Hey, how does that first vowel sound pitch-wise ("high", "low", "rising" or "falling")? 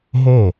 falling